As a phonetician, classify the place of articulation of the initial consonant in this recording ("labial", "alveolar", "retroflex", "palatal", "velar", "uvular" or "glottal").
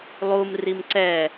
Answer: alveolar